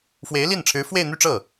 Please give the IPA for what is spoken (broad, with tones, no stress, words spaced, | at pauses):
fwe˧˥ɪ̯li˥˩nʈ͡ʂʰɻ̩˧˥ fwe˥˧ɪ̯n̪y˥˧ʈ͡ʂɤ˥˩